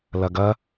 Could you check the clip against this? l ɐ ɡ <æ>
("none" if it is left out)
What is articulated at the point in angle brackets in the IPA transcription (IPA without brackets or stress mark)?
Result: ɐ